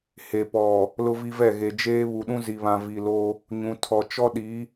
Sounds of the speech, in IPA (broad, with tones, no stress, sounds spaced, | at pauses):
h e˨ p ɔ˨ | l ʊ˦ v i˦ v ɛ˦˨ ɣ e˨ d͡ʒ eː˦ β u˨ ɗ ũ˦ z i˨ β ã˨ v i˨ l o˦ | ɲ ũ˨ tʰ ɔ˨ t͡ʃ ɔ˦ ɗ i˨˦